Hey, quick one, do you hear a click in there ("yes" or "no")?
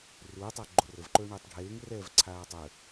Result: yes